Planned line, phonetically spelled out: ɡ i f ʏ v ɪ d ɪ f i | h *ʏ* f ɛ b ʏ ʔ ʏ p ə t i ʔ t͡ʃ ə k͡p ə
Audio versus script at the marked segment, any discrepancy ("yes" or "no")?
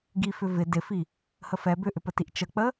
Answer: yes